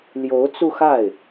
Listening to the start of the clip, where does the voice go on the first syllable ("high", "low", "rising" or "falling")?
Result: rising